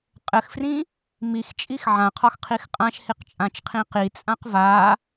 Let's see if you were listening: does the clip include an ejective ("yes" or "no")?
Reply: yes